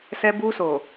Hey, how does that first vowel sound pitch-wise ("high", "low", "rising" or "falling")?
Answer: high